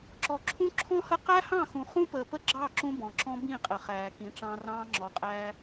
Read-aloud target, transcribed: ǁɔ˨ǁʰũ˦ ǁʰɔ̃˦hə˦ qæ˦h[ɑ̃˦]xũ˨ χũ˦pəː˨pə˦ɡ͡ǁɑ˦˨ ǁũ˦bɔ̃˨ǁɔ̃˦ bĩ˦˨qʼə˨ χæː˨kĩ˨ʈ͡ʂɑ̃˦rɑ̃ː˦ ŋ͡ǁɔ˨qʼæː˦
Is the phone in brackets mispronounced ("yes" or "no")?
yes